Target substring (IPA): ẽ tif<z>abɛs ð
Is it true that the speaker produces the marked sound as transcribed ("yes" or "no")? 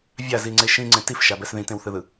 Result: no